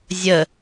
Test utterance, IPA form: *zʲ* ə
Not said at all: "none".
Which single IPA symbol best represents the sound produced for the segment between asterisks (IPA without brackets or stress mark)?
zʲ